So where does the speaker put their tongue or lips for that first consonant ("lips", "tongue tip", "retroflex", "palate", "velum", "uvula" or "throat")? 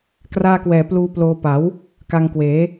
velum